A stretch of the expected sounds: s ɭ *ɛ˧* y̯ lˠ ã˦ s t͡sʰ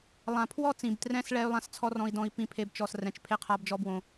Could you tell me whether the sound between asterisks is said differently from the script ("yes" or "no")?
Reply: yes